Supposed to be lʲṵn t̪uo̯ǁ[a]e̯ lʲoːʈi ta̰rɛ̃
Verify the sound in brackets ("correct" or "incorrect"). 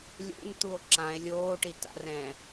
incorrect